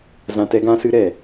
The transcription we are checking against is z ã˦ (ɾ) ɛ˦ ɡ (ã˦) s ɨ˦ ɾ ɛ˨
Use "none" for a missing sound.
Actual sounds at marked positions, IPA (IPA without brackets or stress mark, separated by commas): t, ã˦